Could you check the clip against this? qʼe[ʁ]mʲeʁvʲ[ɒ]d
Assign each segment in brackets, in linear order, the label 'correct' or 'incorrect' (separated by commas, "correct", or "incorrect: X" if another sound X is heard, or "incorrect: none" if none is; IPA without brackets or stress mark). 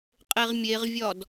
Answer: correct, correct